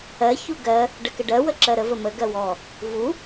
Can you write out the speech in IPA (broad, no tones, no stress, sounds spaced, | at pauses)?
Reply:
ɜ ç u ɡ ɜ | ɖ ə k ə ɖ ɜ w ə ǁ ɜ ɾ ə v ə m ə ɡ ɜ w ɔ | v u